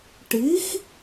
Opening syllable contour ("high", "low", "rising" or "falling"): rising